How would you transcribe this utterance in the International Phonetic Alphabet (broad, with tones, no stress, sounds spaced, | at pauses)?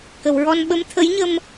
k ə˨˩˨ w ɹ ɔ˧ n ɓ ə˧˥ m t̪ʰ ə˧˥ j ɲ ə˧ m